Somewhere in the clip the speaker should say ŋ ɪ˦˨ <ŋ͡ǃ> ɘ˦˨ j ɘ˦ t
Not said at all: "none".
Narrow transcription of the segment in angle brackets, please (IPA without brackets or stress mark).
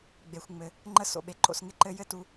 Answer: ǃ